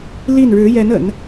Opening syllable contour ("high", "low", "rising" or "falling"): falling